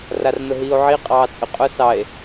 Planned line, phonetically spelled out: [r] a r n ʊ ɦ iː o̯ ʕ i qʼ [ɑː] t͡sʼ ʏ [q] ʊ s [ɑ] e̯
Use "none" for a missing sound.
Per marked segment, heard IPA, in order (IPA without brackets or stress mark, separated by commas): r, ɑː, qʼ, ɑ